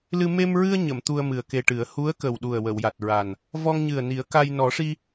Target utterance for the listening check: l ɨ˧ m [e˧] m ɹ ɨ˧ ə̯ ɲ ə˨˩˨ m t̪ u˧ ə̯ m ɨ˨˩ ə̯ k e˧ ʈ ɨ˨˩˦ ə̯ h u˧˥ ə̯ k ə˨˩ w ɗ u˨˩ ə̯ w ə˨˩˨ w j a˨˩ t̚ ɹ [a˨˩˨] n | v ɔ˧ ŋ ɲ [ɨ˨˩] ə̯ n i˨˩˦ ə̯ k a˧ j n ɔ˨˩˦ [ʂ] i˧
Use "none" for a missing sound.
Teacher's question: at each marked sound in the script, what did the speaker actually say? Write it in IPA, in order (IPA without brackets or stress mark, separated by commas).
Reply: e˧, a˨˩, ɨ˨˩, ʂ